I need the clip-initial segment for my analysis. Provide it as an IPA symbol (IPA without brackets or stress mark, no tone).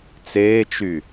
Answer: t͡s